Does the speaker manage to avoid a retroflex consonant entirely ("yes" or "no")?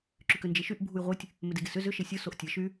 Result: yes